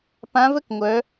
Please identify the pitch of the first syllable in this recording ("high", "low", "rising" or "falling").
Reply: rising